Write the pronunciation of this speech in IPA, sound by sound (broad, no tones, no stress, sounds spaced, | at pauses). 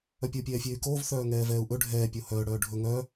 œ pʲ o pʲ ɛː fʲ eː y̯ k oː v θ œː ŋ ɛː v ɛː u̯ ʔ ɵ ɖʱ ɛː pʲ o h œː ɽ œː ɖʱ ɵ ŋ œ